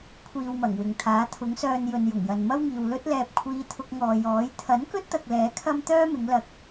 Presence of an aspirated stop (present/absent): present